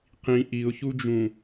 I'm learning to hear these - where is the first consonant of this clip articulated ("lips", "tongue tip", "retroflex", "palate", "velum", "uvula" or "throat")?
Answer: uvula